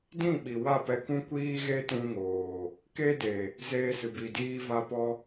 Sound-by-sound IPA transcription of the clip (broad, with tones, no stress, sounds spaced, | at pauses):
d ĩ˦˨ ɓ i˨ w a˦˨ p ɛ˧ k ũ˦ kʷ iː˦ ɣ e˦ t ũ˦ ŋ oː˨ | k e˦ d e˨ | z eː˧ s ɨ˨ b i˨ d iː˧ v a˧ p ɔ˧